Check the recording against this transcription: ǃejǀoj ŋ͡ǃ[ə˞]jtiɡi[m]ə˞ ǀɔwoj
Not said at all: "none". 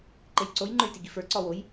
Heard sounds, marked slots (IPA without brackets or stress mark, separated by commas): ə˞, f